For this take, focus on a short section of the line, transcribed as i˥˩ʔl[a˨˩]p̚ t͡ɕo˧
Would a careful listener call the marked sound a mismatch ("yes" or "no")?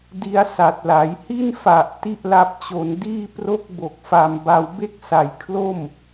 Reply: yes